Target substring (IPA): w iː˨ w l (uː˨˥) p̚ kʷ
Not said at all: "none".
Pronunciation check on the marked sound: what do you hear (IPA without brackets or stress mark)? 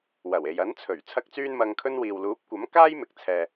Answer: uː˨˥